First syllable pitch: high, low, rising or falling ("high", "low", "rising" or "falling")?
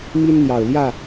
high